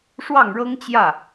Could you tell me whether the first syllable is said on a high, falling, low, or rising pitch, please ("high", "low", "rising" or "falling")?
falling